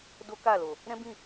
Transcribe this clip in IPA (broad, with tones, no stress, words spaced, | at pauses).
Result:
do˦ka˦˨lo˨ | ɾɛ̃˦bĩ˦˨